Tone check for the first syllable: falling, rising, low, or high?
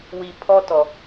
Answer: high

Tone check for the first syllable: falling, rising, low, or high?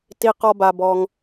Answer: low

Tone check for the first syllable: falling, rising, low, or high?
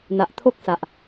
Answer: low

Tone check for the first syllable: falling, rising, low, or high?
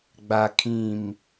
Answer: low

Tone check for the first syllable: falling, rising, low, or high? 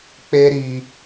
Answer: high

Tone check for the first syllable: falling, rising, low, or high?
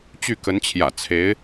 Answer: falling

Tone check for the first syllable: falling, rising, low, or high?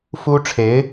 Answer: high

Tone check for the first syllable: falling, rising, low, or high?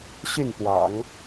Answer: falling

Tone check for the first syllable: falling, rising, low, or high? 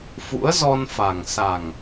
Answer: rising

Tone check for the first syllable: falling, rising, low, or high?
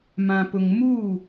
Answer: low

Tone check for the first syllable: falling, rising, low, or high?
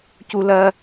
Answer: high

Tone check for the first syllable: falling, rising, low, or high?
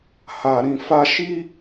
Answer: low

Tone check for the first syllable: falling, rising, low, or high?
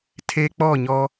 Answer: high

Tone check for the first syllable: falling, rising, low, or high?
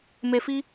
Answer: low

